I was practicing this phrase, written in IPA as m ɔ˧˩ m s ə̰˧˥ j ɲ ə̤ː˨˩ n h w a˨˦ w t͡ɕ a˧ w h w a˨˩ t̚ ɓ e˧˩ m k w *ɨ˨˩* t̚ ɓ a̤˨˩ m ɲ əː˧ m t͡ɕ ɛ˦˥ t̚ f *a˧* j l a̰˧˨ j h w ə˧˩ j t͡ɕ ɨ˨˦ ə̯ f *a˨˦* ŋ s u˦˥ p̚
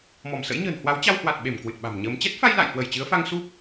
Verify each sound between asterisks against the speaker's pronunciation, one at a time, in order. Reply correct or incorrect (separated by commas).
correct, correct, incorrect